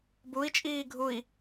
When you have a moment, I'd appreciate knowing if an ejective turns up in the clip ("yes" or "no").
yes